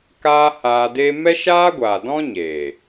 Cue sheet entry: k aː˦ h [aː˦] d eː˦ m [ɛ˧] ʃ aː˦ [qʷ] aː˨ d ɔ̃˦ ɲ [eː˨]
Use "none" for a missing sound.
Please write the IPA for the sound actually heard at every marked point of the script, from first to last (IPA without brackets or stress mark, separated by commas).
aː˧, ɛ˦, ɡʷ, eː˨